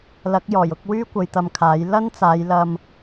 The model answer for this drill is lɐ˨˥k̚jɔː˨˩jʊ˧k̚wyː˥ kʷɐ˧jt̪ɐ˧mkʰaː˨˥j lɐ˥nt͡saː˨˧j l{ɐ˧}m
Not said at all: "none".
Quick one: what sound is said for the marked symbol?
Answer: ɐ˧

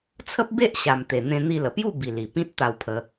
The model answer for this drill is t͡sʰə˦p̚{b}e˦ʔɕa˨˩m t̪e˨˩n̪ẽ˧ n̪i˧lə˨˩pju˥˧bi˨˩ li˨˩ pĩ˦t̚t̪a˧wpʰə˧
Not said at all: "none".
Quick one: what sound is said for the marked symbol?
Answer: b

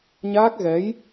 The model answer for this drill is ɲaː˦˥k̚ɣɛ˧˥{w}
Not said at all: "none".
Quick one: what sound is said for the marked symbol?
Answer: j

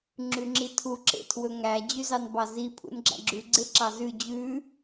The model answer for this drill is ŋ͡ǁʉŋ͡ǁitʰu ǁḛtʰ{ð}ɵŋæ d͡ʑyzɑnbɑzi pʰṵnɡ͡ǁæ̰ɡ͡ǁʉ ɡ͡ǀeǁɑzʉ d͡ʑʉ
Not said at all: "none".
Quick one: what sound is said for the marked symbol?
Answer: w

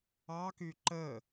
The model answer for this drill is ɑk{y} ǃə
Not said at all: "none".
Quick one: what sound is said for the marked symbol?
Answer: y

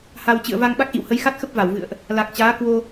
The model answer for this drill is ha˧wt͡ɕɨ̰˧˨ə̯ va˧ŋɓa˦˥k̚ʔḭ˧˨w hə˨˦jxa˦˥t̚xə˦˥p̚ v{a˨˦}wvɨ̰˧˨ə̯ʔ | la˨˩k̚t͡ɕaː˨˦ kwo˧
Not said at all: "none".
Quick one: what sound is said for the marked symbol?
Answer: a˧˩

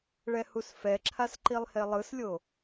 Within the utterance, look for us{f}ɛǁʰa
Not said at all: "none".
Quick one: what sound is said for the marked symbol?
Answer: f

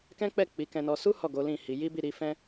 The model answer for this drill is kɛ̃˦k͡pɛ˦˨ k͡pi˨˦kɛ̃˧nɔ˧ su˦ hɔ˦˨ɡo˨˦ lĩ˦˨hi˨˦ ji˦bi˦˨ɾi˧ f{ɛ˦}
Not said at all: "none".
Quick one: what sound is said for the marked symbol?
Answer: ɛ̃˦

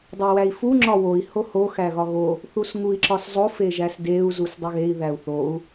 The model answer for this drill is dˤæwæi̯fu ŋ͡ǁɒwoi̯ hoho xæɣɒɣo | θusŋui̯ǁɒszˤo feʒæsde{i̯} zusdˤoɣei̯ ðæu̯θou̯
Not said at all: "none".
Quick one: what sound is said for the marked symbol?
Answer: u̯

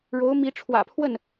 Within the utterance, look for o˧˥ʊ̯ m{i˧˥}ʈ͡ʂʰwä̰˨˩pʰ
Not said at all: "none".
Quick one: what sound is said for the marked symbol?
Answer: i˧˥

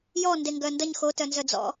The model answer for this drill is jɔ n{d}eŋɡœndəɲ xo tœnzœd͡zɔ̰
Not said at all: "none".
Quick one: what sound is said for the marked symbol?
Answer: d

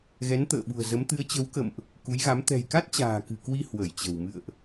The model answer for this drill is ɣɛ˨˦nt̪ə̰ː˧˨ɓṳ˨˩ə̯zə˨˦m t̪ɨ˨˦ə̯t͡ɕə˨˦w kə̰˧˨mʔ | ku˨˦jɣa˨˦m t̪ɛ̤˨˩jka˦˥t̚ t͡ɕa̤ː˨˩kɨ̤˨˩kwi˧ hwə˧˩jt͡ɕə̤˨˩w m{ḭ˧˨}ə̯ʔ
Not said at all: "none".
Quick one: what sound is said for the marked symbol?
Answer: ɨ̰˧˨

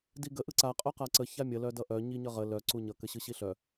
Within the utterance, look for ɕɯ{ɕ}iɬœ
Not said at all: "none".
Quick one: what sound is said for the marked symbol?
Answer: ɕ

